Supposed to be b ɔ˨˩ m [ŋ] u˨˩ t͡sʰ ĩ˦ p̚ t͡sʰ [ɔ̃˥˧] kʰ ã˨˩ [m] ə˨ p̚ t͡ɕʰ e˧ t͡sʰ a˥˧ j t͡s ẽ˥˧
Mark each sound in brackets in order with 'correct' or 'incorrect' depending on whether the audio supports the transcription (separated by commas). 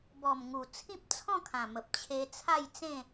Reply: correct, correct, correct